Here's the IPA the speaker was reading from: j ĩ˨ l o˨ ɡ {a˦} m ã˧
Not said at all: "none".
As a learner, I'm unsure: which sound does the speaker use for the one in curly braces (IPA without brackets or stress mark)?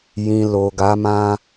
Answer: a˨˦